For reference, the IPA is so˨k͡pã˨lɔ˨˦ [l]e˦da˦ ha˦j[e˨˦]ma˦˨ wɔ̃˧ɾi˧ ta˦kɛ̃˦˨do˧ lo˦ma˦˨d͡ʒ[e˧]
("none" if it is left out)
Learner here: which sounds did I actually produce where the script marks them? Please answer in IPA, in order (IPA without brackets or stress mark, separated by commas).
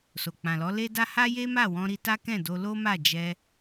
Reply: l, e˦, ɛ˧